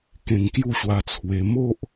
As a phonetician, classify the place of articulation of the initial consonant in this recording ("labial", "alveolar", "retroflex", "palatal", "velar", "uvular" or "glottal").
velar